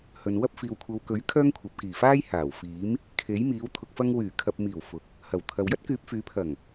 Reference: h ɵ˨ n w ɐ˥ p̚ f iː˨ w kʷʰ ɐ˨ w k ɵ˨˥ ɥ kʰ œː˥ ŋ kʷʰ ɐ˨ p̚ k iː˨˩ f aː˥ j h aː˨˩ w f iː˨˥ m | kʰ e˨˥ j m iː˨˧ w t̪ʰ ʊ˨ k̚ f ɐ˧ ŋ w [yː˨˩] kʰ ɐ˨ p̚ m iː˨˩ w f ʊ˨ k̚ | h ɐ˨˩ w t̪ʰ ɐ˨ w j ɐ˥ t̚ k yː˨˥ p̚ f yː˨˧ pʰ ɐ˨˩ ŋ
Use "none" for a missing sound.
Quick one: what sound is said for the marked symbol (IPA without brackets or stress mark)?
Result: yː˨˩